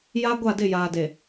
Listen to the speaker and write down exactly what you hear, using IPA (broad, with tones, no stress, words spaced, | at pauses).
ja˦ ɡʷa˦˨dɪ˦˨jaː˨de˨